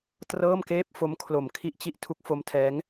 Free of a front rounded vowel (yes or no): yes